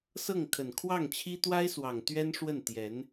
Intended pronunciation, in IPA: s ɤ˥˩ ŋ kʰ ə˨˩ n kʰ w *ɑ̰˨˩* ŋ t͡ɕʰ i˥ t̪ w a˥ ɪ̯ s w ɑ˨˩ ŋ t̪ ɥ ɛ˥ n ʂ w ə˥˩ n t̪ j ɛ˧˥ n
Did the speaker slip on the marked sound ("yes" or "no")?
yes